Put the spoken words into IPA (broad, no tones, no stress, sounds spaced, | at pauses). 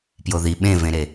p j o ð i ɓ ẽ v ẽ ɾ e